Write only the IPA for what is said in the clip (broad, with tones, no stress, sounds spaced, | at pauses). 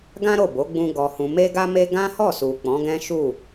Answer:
ɡ ã˦ ɾ o˦˨ b o˨˦ ɡ͡b ũ˦ ɡ ɔ˧ h ũ˧ m e˦ ɡ a˦ m e˦ ɡ ã˦ h ɔ˦˨ s u˨ k͡p ɔ̃˨˦ ɡ ɛ̃˦ ʃ u˦˨